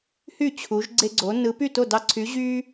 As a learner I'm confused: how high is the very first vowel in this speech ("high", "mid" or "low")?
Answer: high